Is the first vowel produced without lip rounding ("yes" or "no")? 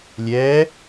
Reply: yes